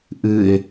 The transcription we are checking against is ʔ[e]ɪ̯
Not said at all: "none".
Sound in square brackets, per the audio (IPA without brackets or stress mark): ɨ